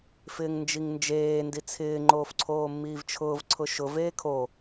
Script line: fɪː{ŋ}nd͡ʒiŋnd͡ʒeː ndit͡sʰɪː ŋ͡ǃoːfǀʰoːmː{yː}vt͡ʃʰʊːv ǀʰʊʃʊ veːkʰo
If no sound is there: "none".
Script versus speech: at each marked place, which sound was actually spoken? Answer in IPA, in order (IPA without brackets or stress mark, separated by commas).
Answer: ŋ, iː